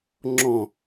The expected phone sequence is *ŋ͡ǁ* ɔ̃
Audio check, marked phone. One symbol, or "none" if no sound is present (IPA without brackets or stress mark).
ŋ͡ǁ